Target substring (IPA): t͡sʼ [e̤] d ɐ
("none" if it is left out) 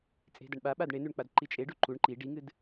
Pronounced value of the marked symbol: e̤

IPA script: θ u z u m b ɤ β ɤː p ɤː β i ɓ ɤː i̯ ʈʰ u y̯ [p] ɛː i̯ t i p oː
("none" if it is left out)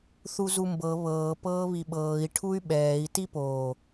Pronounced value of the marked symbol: ɓ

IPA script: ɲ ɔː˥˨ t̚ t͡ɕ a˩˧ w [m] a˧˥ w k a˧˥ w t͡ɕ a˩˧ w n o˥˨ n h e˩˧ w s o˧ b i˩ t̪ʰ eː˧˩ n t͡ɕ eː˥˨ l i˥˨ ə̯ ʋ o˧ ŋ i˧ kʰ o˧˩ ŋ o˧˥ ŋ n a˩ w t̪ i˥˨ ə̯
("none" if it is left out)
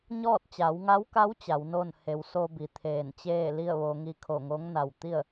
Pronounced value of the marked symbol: ŋ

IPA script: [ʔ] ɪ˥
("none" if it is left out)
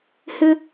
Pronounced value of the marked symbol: h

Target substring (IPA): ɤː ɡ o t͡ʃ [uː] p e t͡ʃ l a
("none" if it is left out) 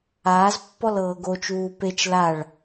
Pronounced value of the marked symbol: uː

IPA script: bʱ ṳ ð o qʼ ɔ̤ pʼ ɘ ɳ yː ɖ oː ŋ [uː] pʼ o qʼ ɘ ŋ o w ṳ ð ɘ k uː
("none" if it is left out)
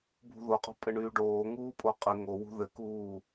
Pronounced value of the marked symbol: uː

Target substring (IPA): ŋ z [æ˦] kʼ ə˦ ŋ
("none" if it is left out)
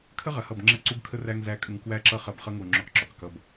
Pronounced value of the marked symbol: æ˦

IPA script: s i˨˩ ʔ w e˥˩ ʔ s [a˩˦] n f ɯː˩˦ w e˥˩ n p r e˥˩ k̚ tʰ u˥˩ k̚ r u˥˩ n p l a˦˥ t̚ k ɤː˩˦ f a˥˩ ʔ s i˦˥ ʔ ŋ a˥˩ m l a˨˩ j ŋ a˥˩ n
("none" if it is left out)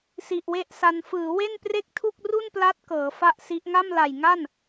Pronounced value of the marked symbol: a˧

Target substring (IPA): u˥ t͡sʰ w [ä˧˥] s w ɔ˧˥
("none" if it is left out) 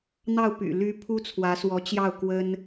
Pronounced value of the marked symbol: ä˧˥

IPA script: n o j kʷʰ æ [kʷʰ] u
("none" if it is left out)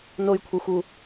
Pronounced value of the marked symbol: xʷ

